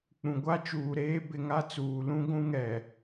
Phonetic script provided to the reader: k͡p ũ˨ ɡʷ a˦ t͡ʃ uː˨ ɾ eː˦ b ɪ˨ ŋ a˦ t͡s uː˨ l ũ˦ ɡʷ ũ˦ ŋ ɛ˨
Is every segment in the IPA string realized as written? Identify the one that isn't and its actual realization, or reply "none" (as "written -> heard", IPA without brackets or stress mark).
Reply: none